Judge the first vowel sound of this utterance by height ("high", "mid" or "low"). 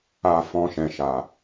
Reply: low